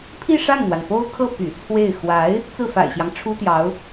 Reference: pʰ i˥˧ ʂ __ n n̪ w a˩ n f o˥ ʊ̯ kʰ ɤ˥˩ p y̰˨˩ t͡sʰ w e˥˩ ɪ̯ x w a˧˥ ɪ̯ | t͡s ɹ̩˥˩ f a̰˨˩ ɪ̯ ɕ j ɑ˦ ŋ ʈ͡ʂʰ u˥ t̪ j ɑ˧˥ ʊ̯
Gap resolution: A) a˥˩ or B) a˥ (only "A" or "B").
A